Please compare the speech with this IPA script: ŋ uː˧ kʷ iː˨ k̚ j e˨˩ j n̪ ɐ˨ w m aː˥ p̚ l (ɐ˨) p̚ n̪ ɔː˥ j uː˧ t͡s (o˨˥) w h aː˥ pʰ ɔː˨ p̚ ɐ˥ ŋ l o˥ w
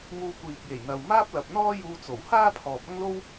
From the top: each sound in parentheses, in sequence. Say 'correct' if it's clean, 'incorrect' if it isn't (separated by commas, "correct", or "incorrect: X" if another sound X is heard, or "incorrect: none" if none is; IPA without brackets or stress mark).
correct, incorrect: o˨˩